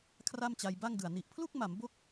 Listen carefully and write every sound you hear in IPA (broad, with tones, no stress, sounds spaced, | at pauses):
kʰ r a˥˩ m t͡ɕ a˧ j b a˥˩ ŋ d ɯ˨˩ a̯ n i˨˩ ʔ pʰ l u˥˩ k̚ m a˩˦ m b o˥˩ k̚